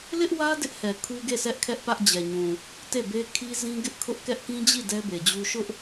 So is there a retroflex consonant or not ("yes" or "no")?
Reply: no